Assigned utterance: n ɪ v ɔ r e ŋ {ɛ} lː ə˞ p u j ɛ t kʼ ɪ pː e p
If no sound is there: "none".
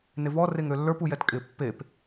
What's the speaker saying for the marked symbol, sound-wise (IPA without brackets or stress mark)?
ø